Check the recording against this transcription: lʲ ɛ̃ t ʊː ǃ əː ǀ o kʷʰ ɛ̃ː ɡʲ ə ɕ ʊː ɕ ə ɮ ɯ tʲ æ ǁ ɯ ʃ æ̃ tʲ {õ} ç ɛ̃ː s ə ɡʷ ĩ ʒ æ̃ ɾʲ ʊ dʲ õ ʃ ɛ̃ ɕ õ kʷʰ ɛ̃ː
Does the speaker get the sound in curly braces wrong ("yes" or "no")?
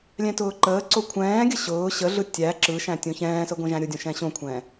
no